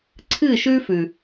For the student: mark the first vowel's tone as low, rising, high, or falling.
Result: falling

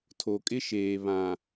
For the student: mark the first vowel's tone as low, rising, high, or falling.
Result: low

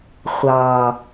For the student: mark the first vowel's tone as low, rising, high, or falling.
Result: low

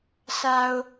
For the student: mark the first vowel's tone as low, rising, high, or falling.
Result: low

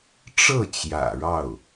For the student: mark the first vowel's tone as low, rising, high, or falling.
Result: falling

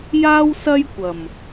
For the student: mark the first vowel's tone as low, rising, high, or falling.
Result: high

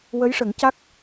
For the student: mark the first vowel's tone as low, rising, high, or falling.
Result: rising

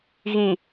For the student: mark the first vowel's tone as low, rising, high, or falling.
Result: low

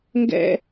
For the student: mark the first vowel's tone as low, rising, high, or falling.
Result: high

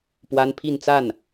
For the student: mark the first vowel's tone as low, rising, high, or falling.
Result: high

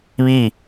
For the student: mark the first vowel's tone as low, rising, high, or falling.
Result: falling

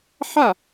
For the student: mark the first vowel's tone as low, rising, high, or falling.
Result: falling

